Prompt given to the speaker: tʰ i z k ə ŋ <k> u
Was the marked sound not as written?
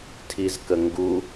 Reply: yes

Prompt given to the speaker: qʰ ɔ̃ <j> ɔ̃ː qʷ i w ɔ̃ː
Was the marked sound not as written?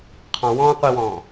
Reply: yes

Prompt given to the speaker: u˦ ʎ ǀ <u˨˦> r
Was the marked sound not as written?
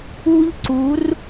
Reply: no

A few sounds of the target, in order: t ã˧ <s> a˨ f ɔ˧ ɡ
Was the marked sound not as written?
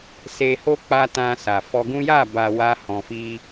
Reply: no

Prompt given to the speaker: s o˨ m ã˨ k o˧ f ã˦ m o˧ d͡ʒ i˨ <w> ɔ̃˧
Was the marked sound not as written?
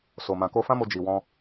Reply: no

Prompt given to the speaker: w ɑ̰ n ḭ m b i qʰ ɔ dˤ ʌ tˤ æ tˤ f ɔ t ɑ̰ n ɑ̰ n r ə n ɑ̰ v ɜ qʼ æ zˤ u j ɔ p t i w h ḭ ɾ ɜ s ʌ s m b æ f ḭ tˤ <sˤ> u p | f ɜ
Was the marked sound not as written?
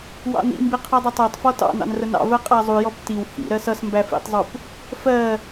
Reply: yes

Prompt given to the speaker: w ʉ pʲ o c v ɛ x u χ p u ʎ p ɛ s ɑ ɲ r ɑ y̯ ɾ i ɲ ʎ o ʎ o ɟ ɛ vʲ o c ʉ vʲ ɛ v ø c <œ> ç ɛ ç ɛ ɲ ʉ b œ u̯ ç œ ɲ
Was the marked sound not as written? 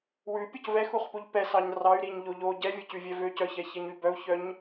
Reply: no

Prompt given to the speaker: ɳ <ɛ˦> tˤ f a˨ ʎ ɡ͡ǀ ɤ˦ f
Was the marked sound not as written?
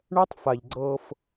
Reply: no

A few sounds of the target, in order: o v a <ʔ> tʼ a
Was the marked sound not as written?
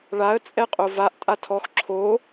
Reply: no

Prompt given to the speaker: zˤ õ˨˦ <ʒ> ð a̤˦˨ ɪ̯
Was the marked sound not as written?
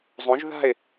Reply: no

